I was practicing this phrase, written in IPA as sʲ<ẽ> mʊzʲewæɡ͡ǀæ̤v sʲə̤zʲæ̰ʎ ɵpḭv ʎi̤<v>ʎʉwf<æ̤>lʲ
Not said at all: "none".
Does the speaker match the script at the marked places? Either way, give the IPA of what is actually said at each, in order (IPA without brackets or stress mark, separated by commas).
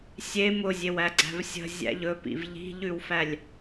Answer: e, none, æ